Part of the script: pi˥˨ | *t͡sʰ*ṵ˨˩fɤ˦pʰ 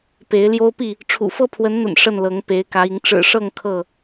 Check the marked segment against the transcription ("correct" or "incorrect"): incorrect